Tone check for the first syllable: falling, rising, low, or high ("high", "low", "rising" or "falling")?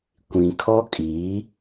low